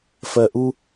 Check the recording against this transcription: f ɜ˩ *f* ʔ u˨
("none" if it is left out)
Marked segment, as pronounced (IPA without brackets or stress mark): none